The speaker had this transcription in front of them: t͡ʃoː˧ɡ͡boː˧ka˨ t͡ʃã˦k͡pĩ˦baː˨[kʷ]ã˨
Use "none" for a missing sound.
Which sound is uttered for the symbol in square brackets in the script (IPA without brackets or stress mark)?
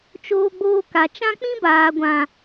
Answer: ɡʷ